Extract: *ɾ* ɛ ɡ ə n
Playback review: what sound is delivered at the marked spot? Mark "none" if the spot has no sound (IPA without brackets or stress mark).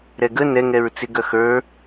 ɾ